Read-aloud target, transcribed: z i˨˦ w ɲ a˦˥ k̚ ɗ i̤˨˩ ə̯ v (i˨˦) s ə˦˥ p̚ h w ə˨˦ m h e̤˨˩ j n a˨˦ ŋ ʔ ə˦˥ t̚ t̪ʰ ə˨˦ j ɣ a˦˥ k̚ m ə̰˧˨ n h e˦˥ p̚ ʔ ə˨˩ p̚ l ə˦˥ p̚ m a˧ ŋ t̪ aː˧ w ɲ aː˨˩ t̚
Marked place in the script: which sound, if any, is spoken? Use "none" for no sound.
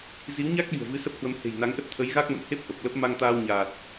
ɨ˨˦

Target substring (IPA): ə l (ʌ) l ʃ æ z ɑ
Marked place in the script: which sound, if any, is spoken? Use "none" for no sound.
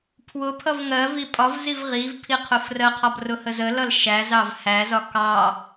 ʌ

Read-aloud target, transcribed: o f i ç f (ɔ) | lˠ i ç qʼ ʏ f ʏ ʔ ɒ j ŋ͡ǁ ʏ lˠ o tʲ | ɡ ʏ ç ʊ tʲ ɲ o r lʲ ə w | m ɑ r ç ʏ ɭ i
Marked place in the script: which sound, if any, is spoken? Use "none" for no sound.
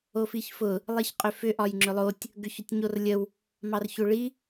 ʊ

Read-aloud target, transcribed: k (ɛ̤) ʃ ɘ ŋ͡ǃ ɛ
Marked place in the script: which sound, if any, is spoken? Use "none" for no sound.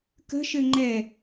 ə̤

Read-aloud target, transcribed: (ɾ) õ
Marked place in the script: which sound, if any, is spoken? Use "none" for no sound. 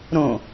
ɾ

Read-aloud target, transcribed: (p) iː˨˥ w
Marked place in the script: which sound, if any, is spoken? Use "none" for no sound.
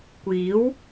kʷ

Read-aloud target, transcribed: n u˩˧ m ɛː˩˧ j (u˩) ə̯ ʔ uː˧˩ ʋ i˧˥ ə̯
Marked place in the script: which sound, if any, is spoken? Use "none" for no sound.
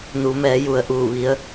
u˩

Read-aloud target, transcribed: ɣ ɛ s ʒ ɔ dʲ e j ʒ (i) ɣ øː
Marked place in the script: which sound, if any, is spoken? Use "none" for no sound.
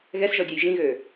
ĩ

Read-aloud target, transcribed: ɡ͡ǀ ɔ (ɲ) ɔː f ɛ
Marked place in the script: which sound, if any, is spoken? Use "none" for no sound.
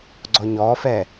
ɲ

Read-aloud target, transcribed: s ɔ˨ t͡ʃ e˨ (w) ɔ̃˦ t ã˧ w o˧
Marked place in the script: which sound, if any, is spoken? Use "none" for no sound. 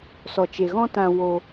ɣ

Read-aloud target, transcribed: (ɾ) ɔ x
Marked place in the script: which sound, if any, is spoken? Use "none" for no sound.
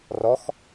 r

